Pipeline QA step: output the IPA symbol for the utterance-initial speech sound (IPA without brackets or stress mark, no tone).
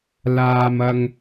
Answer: l